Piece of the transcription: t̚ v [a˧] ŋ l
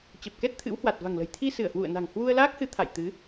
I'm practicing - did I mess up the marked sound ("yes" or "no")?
yes